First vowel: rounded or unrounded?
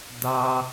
unrounded